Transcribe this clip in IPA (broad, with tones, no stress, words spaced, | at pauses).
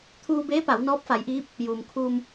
t̪ʰuː˧beː˧˥ pa˩˧w nɔː˧˥p̚fa˩˧jʔiː˧˥p̚ | juː˩mkʰuː˧m